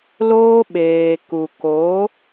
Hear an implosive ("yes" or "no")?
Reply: yes